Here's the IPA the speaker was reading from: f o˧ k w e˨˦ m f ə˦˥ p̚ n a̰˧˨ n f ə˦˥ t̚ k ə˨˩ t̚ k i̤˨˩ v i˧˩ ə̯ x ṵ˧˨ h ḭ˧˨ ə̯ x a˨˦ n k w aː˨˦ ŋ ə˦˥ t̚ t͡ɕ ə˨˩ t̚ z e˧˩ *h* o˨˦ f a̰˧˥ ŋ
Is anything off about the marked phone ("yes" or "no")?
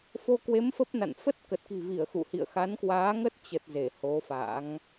no